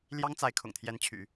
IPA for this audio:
l j ɑ˥ ŋ t͡s a˧˥ ɪ̯ kʰ ʊ̰˨˩ ŋ t̪ʰ j ɛ˧˥ n t͡ɕʰ y̰˨˩˦

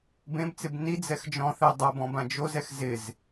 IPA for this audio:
b ẽ b t͡s ɪ b n i d͡z ɛ x d͡ʒ ɔ̃ θ ɛ dˤ a b ɔ̃ b ã d͡ʒ o z ɛ x z ɪ z

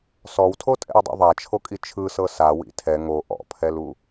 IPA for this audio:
s ɔ w tʰ o tʼ ɛ̰ w dˤ ḭ ðˤ a t͡ʃʰ o kʼ i t͡ʃʰ ɯ s ɤ s a w ḭ tʰ ɛ ŋ o ʔ ɔ̰ pʰ ɛ l u

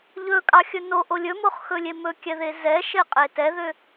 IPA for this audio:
ʎ ɵ kʼ ɑ xʲ ɵ n o ʔ o lʲ ɵ m o χ x ɵ lʲ e m ɵ kʲ ɛ ð e z ɛ ʃ e qʼ e t ɛ ð ø

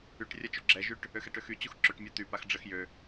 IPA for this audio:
y ʈ rʲ a t͡ʃ u ɡ͡ǁ ɛ ʒ y ʈ | ø x ɛ ʈ ø x y t͡ɕ u x ǁ ø ʈ mʲ a t̪ y p a x ɖ͡ʐ ə x j ø

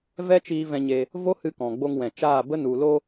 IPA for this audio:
v ɛ˦ t͡ʃ iː˧ v ɛ̃˧ ɲ e˧ | v o˦ h ɨ˧ k ɔ̃˨ ɡ͡b o˧ ŋ w ɛ̃˨ t͡ʃ aː˦˨ b ə˦ n u˨ l o˧

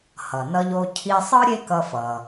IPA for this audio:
h ʌ˩ n ʌ˧ ʎ o˧ cʰ i˧ sˤ ɯ˥ ɾʲ e˥ k ʌ˧ f ʌ˩

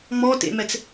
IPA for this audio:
ŋ͡m ɔ t ḛ m ɛ t͡s

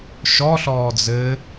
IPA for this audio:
ʃ ɔ ɬ ɔː d͡z ɘ

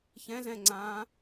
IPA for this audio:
ç ɛ̃ z ɛ̃ ŋ͡ǀ ãː

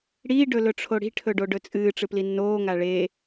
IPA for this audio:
ɽ iː ɖ ɵ l ɵ ʈ͡ʂʰ o ɽ i̤ ʈʰ ɵ ɖ o ɖ ɵ t͡sʼ ɨː ʈ͡ʂ ɨ p l i nː oː ŋ a ɭ e

